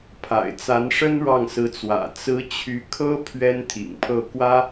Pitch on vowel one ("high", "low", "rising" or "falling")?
low